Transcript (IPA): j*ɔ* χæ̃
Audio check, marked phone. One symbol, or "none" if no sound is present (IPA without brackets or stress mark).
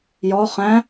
ɔ